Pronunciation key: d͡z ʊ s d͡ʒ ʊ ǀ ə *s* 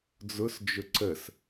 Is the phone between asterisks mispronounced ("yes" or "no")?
no